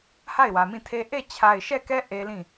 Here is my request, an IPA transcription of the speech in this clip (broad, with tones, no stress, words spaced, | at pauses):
ha˦˨ɪ̯wä˨mĩ˦˨tʰe˦ ʔe˦˨t͡ɕʰa˨ɪ̯ʃɛ˦˨kɛ˦ ʔe˦lĩ˦˨